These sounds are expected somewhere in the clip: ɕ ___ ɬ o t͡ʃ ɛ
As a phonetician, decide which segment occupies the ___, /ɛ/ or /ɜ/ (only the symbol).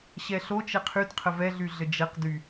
ɛ